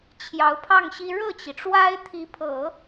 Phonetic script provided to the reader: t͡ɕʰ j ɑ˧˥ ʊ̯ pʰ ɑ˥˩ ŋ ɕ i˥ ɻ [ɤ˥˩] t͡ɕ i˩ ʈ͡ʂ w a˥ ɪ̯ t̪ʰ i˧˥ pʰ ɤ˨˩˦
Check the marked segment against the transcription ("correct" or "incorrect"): correct